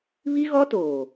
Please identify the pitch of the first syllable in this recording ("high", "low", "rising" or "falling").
high